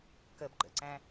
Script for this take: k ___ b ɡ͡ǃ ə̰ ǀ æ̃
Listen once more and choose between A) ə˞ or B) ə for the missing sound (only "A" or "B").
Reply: B